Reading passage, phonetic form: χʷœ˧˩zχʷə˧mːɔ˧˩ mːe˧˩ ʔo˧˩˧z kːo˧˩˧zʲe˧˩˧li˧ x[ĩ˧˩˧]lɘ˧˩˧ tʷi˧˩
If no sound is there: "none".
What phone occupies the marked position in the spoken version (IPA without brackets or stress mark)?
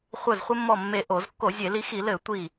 i˧˩˧